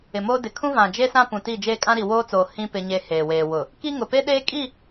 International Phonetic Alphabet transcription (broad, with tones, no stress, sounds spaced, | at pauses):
ɪ˨ m oː˦ d ɪ˨ kʰ ũ˦ v ã˨ d͡ʒ e˦ s ã˦ p ũ˨ t i˦˨ d͡ʒ eː˦ kʼ ã˦ ɾ i˨ w oː˦ t͡s oː˨ h ĩ˦ p ɪ˦ ɲ e˦ h eː˨ w eː˨ w ʊ˨ | k i˦ ŋ ʊ˨ p e˦ ɗ eː˦ kʼ i˦˨